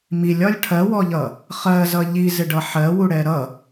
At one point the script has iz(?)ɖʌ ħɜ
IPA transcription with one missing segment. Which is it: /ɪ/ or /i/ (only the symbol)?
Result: ɪ